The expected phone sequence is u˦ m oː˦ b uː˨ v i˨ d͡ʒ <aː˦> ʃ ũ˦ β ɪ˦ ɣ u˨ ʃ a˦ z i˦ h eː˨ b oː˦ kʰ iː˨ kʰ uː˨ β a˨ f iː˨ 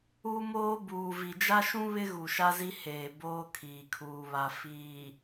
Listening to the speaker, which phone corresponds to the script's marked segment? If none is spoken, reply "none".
a˦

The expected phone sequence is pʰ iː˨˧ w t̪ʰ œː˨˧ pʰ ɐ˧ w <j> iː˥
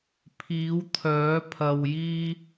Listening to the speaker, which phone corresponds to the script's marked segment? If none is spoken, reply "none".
j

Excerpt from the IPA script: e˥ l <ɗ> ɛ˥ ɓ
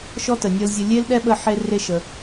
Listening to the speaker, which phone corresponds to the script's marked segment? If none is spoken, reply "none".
ɗ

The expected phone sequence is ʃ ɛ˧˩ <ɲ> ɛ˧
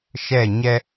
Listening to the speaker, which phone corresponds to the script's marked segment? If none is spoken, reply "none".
ɲ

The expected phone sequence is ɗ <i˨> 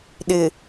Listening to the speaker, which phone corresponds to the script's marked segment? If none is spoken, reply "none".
ɪ˨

